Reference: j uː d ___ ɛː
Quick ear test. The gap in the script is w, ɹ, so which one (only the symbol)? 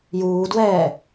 w